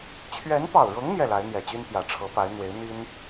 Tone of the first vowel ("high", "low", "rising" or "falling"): rising